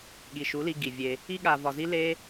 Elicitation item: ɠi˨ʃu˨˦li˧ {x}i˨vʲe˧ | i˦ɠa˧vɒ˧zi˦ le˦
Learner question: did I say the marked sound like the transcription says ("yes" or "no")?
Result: no